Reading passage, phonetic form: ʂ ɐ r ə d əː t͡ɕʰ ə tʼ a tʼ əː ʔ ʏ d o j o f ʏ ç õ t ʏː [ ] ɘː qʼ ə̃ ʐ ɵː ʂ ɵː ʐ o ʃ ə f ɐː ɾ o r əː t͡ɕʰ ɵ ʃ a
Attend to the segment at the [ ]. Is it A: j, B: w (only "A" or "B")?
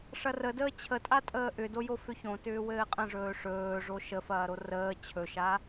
B